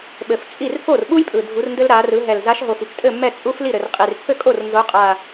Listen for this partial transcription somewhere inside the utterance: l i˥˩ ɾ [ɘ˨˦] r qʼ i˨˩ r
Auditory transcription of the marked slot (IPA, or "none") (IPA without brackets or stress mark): ɘ˨˩